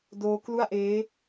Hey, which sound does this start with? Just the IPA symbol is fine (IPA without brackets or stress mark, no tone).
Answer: d